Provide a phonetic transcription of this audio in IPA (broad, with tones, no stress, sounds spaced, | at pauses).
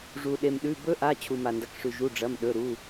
ʐ u˩ ɗ e˩ m ɗ ʉ˩˧˩ b ɵ˦˥ ʔ a˩˧˩ t͡ɕʰ u˩ m a˩ n d ɐ˩ k ʂ ʉ˩ ʒ u˩˧˩ ɖ͡ʐ ɐ˩˧˩ m ɗ ɵ˩˧˩ ɾ u˩˧˩